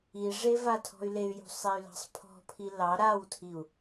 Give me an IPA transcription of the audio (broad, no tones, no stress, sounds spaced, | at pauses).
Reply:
i ʐ e v a tʰ ɔ̤ y̯ l e y̯ j ṳ sˤ e y̯ l ɑ̤ sˤ pʰ ɔ̤ pʰ i l ɑ ɾ a w tʰ i u̯